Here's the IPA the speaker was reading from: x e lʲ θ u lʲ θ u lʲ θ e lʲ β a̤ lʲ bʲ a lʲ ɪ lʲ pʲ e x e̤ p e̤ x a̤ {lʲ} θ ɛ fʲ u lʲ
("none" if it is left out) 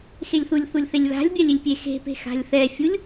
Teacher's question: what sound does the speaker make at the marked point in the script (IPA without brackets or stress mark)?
lʲ